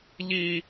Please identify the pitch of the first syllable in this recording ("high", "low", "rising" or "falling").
high